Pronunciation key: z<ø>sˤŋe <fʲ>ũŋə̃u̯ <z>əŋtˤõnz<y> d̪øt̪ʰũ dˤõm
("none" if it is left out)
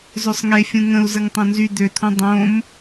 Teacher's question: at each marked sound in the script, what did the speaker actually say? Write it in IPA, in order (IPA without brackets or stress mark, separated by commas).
ø, fʲ, z, y